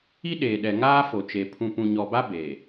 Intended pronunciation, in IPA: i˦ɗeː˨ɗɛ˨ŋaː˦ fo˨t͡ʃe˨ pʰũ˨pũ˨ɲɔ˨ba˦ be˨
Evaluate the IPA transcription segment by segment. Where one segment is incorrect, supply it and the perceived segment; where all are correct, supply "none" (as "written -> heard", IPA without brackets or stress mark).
none